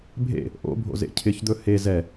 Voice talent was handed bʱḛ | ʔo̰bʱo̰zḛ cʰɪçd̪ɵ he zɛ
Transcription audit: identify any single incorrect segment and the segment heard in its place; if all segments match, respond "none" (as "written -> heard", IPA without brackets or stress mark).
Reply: none